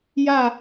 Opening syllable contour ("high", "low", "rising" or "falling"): falling